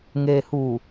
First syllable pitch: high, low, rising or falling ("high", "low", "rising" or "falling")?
low